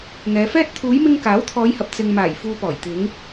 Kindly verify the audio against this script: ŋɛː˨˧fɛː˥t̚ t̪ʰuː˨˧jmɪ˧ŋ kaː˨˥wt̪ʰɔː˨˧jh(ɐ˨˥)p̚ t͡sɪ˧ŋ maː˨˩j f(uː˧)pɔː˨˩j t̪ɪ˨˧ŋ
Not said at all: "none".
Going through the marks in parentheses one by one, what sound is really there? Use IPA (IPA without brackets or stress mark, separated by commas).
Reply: ɐ˨, uː˧